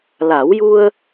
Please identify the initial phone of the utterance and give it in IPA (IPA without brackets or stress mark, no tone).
l